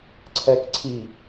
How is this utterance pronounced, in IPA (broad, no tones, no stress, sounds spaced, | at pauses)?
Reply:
ǀʰ ɛ k ǀʰ i